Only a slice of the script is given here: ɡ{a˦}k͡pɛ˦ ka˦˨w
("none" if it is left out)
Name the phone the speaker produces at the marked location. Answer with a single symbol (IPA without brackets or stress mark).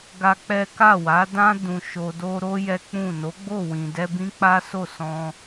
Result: a˦